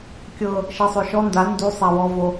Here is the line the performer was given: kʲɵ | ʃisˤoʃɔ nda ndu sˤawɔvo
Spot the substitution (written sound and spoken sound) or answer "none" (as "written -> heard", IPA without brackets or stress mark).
ɵ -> ɤ